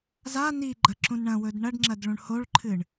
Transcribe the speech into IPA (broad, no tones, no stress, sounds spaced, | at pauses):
z a n i ɡ͡ǃ ɐ ǁ ũ n ɳ ɐ̃ w ɵ d ɳ ɐ ɖ ŋ͡ǁ ɐ d ɭ ũ ɳ h o ɭ ǃʰ ɨ ɳ